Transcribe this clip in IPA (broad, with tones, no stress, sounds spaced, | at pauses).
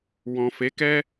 w ɔ̃˨ f e˨˦ k ɛ˦